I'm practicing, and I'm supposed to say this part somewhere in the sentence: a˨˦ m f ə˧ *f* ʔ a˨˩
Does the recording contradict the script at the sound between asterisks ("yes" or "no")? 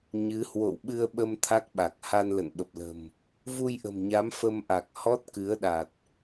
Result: yes